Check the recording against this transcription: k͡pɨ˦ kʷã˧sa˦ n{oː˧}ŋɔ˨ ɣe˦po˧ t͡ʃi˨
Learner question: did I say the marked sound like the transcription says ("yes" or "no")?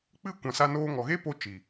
yes